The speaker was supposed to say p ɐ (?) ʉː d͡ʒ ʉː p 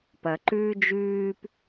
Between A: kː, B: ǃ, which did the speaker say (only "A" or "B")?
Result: B